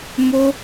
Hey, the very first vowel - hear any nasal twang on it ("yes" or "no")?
no